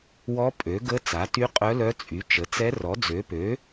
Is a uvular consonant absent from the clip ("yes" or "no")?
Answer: no